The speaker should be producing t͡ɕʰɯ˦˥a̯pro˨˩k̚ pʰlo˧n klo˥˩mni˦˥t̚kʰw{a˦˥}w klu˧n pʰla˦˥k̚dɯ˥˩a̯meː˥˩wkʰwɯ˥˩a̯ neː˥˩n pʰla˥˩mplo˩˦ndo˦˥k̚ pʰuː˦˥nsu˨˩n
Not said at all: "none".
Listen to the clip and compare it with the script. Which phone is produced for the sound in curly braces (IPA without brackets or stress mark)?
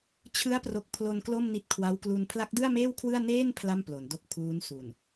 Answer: a˦˥